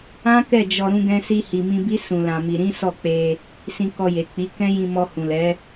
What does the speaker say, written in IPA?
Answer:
ã˦ k ɛ˦˨ d͡ʒ ɔ˧ ɾ ũ˧ ɡ ɛ̃˧ s i˧ h i˨ m ĩ˧ b i˦ s ũ˧ l ã˧ m i˧ ɾ ĩ˦ s ɔ˦˨ k͡p e˧ | s ĩ˧ k ɔ˧ j e˨ k͡p i˨˦ k ɛ̃˦ j ĩ˧ m ɔ˧ h ũ˨ l ɛ˨˦

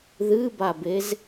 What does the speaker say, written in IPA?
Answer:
ð ɨ b a b e z

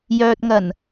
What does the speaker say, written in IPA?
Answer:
j œː˨ t̚ ŋ ɐ˨˩ n

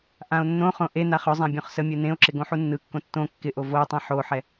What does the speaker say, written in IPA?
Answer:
ʔ ã o̯ nː õ χ õ ʔ e n a χ ɵ zˤ ã bʲ õ χ s ə mʲ ɯ n ẽ o̯ ǁ ɪ ɡ õ ħ u nː ɯ kː õ tː õ kː ɪ ʔ o v o tˤ ã ħ o ħ ɛ

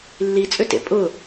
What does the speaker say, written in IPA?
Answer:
lː i t͡sʼ ʏ t ḛ pʼ ʊ

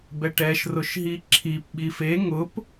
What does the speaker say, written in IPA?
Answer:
b ɛ ʈ ɛ ʃ r ʊ ʃ ɦ i ǁʰ i p ɓ i f e ŋ ʊ p

